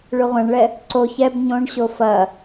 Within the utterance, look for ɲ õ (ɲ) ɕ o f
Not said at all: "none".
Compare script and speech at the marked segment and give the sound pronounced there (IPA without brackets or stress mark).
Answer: ɳ